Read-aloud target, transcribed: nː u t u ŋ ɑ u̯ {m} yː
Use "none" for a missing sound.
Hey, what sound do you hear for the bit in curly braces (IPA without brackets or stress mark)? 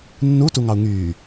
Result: ŋ